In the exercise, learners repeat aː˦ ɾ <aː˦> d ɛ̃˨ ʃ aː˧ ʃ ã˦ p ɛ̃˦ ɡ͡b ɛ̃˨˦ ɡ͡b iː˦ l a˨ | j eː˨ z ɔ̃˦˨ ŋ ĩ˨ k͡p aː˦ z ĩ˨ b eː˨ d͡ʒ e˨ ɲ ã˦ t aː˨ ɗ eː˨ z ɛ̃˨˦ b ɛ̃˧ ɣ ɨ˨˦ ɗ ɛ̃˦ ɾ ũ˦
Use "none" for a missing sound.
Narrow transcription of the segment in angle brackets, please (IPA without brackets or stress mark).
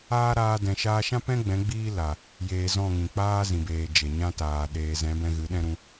aː˧